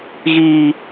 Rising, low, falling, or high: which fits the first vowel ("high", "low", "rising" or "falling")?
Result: low